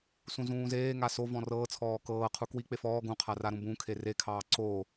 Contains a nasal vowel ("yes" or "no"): yes